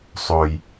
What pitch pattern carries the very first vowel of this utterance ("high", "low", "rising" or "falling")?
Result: low